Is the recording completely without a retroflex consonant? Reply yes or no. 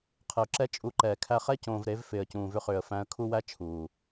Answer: yes